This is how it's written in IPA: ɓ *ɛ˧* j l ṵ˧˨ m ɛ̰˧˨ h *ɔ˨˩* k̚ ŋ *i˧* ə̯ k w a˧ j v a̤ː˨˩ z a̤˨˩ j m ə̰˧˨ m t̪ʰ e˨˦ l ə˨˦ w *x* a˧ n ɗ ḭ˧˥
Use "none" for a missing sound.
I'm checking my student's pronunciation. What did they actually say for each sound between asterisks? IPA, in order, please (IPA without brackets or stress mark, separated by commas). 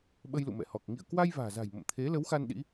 ə˧, ɔ˨˩, ḭ˧˨, x